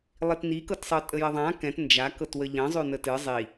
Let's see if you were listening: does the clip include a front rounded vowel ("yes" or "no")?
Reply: no